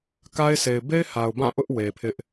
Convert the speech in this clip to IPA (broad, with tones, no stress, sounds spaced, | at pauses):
k a˦ ɪ̯ sʰ e˨ ɪ̯ b e˦ ɪ̯ h a˨ ʊ̯ b ã˦˨ ʔ ʊ˦ ʔ w e˨ pʰ ɪ˦ ʔ